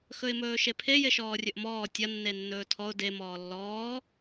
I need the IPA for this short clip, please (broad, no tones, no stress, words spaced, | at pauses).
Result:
xɵɪ̯mɵːʃepʰe jeʃɔːrʲɵʔmɔː tʲɐ nːenːɵːtʰɔʊ̯ de mɔːlːɔː